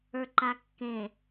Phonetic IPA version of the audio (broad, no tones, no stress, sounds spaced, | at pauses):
ə˞ ǃ a kː ẽ